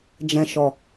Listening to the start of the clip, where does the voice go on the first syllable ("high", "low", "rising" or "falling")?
low